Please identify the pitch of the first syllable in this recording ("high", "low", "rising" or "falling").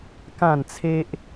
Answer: falling